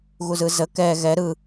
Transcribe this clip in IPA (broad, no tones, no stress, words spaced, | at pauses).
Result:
ɣuzɯzə kɛ ɣɛ ɾɯ